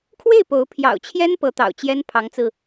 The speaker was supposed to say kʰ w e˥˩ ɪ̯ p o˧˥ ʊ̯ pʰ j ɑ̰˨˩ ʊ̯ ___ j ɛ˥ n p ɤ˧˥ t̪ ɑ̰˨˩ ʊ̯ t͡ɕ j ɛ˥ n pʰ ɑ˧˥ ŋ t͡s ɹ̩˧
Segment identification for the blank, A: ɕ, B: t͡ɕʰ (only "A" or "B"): B